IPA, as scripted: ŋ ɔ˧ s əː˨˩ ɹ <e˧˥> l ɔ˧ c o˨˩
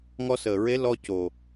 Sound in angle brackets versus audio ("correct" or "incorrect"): correct